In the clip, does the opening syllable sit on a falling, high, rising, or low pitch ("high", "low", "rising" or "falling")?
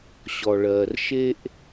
low